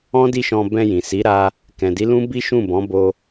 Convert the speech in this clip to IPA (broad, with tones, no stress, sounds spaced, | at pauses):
ɔ̃˦ d i˦˨ ʃ ɔ̃˧ b ɛ̃˧ j ĩ˨ s i˨˦ ɾ a˦ | k ɛ̃˨ d i˨˦ l ũ˦ b i˦ ʃ ũ˦˨ b ɔ̃˨˦ b o˧